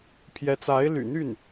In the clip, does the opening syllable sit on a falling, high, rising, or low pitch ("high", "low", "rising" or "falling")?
rising